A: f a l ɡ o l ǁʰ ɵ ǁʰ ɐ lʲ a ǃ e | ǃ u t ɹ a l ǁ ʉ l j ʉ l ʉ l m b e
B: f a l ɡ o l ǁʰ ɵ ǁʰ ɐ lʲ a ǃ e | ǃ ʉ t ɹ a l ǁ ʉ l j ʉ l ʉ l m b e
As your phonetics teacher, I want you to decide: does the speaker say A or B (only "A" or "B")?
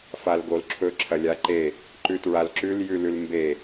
B